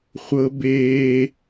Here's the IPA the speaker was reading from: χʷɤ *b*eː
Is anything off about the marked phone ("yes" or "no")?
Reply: no